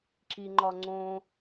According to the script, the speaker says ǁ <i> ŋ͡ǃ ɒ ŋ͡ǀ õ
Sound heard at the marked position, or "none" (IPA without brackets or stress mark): i